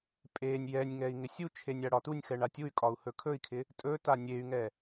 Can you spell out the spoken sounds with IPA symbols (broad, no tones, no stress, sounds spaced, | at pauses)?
pʼ e nʲ j ɛ nʲ ŋ ɛ i̯ ŋ ɪ sʲ u t͡ʃʰ e nʲ a ɽ ɒ t u nʲ x ɛ ɳ a tʲ u y̯ kʼ ɒ u̯ h ɵ kʰ ɵ i̯ kʰ ɪ | tʼ ɵ t a nʲ e y̯ ŋ ɛ